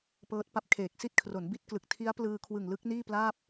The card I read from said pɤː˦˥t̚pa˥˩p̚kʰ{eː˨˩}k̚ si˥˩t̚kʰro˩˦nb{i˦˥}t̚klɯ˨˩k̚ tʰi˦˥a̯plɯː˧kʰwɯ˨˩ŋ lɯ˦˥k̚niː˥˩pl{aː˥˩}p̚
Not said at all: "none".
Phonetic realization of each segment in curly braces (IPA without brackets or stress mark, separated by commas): eː˨˩, i˦˥, aː˥˩